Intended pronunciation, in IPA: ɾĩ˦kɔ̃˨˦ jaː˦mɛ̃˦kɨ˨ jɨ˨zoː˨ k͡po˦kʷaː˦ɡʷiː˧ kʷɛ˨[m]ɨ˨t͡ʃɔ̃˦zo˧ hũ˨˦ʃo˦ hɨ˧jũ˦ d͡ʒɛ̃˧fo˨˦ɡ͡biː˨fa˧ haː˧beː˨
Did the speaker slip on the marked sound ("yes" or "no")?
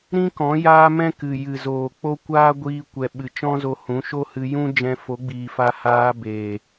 yes